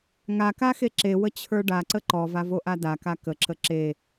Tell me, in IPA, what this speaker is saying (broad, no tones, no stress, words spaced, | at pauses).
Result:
ŋakaxe ǁewət͡ɕʰə˞ ɖaǀə ǃɔvavoʔa daka kəǁə ǁe